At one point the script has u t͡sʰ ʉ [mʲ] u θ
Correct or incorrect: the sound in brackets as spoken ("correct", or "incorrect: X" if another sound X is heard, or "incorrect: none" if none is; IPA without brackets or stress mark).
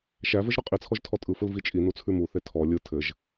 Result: incorrect: m